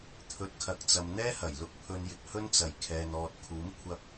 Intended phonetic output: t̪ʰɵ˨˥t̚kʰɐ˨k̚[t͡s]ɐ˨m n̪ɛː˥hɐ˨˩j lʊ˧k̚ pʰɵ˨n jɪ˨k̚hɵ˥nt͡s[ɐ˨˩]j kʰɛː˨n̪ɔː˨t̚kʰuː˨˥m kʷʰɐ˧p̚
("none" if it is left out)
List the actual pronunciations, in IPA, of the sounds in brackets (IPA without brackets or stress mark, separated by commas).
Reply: t͡s, ɐ˨˩